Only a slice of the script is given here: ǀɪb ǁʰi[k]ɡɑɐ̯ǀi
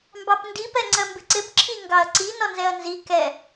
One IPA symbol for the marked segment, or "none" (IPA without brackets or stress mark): ŋ